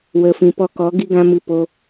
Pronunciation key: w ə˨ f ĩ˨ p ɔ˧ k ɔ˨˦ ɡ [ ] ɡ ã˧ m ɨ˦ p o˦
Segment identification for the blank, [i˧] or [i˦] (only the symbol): i˧